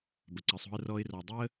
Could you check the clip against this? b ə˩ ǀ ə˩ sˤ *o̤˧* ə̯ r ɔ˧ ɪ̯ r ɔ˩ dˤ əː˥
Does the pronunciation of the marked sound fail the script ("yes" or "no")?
no